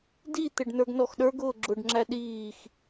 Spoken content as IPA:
d i t̪ ɪ ɖ n ə˞ ɡ n ɔ x ɗ ə˞ ɡ ʊː ɡ͡ǁ ʊ ɖ ŋ͡ǁ æ ɗ iː x

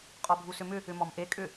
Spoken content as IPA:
qʼ ɔ bʱ u s ʏ m ʏ | ʏ m ɔ m ʔ e kʼ ʏ

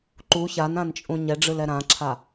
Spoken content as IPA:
ǃ u ç a n ã n t͡ʃʼ ũ ɲ ɛ ɖ͡ʐ ɯ l ɛ ɾ ã ǁʰ a

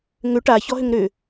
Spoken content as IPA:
ŋ ʏ ʈ a ç ɔ ɦ ʏ ŋ ɾ ʏ

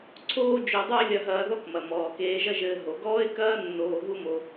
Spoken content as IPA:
ǀʰ oː˥ d͡ʒ o˧ dˤ u˥ ɪ̯ lʲ ɐ˧ ɦ ɐː˧ ð ɔ˥ k m ɐ˩ m ɔː˩ k eː˧ ʒ ɐ˥ ʒ ɘː˧ ɦ o˩ ɡ ɔː˥ ɪ̯ k ɐː˥ nː oː˧ ɦ u˥ m o˧

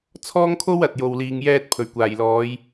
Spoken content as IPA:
t͡sʰ ɔː˥ ŋ kʰ o˥ w ɐ˨ t̚ j o˨ w l iː˨ ŋ j ɛː˧ t̚ pʰ ɵ˨˩ ɥ kʷ aː˨˩ j l ɔː˨˧ j

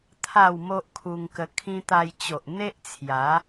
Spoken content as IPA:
t̪ʰ a˥˧ w m o˦ ʔ kʰ u˧ ŋ k ə˧ kʰ ĩ˦ t̪ a˧ j t͡ɕ o˨ ʔ n̪ e˦ ʔ t͡sʰ j a˨˦

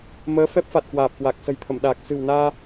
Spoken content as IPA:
m əː˨˦ f ɛ˦˥ p̚ f a˨˩ t̚ k w aː˨˩ p̚ k w a˨˩ k̚ s ə̤˨˩ j t̪ʰ ə˧˩ m ɗ aː˨˩ k̚ s ɨ̤˨˩ w n aː˧

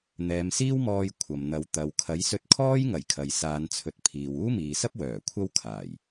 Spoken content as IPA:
n̪ ɛː˨˧ m s iː˥ w m ɔː˧ j kʷʰ ɐ˨ m n̪ ɐ˨˧ w t̪ ɐ˨ w kʰ ɐ˨˥ j s ɵ˧ t̚ kʰ ɔː˥ j ŋ ɐ˨˩ j kʰ ɐ˨ j s aː˨˧ n t͡sʰ ɵ˨˥ t̚ pʰ iː˨ w uː˥ m iː˨ s ɐ˥ p̚ w œː˨˩ kʷʰ ɐ˥ w kʰ aː˨˩ j

